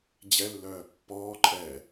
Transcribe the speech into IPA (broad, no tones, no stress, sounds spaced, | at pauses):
d͡ʑ ɛ lː œː pː ɔː ǃʼ ɛ